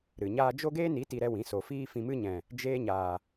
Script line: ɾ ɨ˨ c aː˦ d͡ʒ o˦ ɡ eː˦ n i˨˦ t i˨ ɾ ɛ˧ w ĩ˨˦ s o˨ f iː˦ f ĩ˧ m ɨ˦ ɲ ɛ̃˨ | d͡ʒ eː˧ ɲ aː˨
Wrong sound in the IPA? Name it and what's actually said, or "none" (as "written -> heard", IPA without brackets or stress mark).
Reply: c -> ɲ